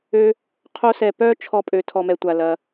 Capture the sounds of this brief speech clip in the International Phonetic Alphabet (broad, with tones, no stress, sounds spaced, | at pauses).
ø˧ | qʰ o˦ s ɛ˧ p œ˦ t͡ʃʰ ɔ˧ pʼ ø˨ tʰ ɔ˨ m ɛ˨ tʷ a˨ l ɐ˧